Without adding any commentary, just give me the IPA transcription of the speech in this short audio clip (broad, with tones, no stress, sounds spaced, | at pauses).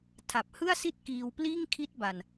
tʰ a˨˩ p̚ h ɯ˥˩ a̯ s i˥˩ t̚ k iː˧ w p l iː˥˩ ŋ kʰ i˥˩ t̚ b a˧ n